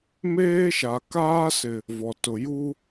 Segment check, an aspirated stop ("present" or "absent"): absent